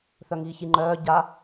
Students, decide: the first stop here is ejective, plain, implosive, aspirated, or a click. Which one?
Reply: click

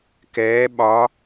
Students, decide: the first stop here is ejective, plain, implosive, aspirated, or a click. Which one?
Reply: plain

